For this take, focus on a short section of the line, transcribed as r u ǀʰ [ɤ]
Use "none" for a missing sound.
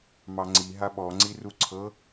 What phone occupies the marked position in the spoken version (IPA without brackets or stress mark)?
ɤ